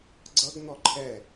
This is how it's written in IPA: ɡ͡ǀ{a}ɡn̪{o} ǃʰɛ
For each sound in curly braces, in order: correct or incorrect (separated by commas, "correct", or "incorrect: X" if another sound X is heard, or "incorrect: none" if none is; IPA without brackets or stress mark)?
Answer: incorrect: ʌ, incorrect: ɔ